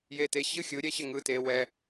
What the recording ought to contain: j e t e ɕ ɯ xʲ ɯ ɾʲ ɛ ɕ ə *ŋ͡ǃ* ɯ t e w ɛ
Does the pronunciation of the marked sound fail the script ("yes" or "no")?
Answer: yes